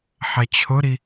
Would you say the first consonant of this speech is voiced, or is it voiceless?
voiceless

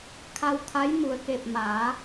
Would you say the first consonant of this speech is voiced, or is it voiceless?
voiceless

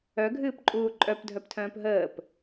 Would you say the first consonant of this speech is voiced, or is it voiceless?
voiced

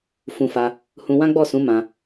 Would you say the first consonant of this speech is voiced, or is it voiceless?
voiceless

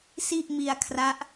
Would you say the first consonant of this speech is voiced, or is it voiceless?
voiceless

